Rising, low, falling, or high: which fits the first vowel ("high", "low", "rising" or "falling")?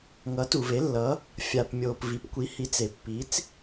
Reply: rising